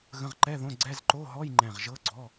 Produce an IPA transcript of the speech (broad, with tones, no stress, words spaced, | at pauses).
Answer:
ɣə̃˧˥˧ʁǃɛ˧˥˧ðõ˧˥˧ ɡ͡ǀɛ˧˥˧z ǃo˧˥˧ɦɔ˧˥˧jŋ͡ǃɛ̃˧˩ʁ ʒɤ˧˥˧ɡ͡ǀɔ˧˥˧